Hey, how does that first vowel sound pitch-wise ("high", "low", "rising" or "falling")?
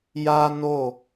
high